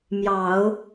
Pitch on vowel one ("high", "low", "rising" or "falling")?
low